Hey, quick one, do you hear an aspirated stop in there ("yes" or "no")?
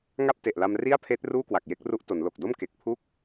yes